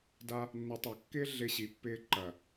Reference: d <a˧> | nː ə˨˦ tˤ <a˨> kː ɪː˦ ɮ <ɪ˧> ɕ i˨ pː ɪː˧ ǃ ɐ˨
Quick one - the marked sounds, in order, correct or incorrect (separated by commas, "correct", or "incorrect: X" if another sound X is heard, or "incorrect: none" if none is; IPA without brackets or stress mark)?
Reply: correct, correct, correct